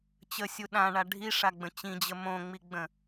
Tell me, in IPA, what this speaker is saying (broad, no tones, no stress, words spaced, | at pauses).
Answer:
t͡ɕəsʲu ɗãɳa ɖʱiʂaɡ͡bə̃ t͡ɕĩd͡ʑə mõŋ͡miɡ͡bə̃